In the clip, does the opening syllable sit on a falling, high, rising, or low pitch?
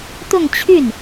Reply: falling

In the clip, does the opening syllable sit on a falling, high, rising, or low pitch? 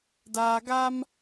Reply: low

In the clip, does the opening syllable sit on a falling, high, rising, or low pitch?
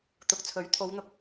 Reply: rising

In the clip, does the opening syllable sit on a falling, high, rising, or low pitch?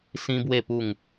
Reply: high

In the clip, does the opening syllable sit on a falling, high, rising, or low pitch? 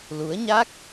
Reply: rising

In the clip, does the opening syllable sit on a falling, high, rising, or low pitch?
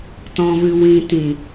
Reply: low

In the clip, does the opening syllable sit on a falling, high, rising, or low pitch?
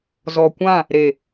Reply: low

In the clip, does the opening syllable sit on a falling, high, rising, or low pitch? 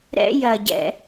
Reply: high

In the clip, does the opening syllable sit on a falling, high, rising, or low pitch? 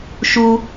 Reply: high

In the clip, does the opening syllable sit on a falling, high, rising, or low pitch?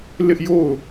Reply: high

